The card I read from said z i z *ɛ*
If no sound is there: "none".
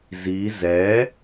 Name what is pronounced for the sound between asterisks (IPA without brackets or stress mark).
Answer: ɛ